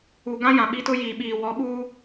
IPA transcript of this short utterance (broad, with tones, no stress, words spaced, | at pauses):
u˨ɡã˦jã˨ ɓi˦tʊ˦ jiː˨ɓiː˨ wɔ˨˦ɓuː˦